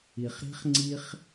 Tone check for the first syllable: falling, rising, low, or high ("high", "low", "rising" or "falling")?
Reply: low